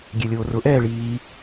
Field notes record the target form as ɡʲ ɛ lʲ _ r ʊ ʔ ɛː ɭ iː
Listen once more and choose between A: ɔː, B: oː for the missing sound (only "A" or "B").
B